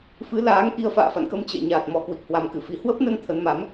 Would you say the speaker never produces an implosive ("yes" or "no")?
yes